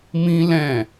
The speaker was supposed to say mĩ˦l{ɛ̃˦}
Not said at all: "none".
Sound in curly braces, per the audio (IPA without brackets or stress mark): ɛ̃˦˨